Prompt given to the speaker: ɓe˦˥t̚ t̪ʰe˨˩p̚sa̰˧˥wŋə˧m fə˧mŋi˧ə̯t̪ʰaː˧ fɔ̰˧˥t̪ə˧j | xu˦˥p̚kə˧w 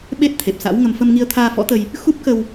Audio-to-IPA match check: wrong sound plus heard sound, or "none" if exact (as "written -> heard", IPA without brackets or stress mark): none